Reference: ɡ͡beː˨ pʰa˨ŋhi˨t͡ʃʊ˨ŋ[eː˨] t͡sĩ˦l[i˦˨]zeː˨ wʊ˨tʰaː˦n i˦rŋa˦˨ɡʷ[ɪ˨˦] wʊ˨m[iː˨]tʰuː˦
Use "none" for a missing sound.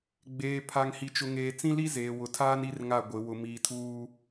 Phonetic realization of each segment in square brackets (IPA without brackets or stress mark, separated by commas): eː˨, i˦, ɪ˨˦, iː˨